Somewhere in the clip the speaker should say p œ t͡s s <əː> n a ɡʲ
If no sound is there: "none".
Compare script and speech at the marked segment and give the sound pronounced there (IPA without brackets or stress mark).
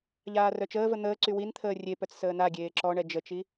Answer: əː